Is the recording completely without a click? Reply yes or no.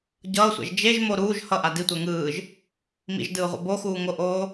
yes